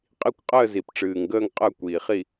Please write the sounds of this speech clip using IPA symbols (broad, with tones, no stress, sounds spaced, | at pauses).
qʼ i˥˨ kʷ qʼ əː˥˨ z i˨˩ p ʈ͡ʂ ɨː˨˩ ŋ ɡ əː˥˨ ŋ qʼ əː˥˨ kʷ iː˨˩ χ i˥˨